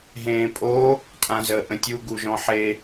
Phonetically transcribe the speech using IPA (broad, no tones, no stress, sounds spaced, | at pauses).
ɦ ẽː pʼ o | tʼ ã z əː ʔ ə̃ tʲ u ɡ u ʒ ɔ̃ ħ e